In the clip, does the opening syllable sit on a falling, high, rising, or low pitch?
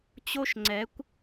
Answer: high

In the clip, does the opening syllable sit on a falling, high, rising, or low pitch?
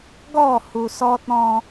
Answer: falling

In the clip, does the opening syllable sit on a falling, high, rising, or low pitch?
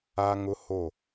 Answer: high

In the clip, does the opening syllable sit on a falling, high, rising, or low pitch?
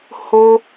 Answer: high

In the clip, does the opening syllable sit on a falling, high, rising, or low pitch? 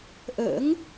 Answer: rising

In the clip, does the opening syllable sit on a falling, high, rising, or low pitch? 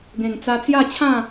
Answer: low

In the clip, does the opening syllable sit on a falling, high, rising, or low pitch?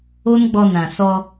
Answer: high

